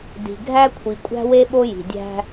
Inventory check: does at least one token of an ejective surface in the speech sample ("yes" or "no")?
yes